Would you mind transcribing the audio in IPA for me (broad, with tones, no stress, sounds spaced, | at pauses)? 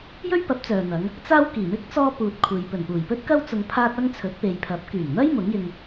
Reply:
j ɵ˥ ɥ p ɐ˨˥ p̚ t͡s œː˨ n̪ ɐ˨˧ ŋ | t͡s aː˥ w k iː˨˩ m ɪ˥ k̚ t͡s ɔː˧ p uː˨ t̚ kʷʰ e˨ j p ɵ˨˩ n p uː˨˩ j p ɵ˥ t̚ k ɐ˥ w t͡s ʊ˧ ŋ pʰ aː˥ t̚ ɐ˥ ŋ t͡sʰ ɵ˨˥ t̚ p e˨ j pʰ ɐ˨˥ p̚ k yː˨˩ ŋ n̪ ɐ˥ j m ʊ˨˥ ŋ j ɪ˧ ŋ